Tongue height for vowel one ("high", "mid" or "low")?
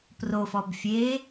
mid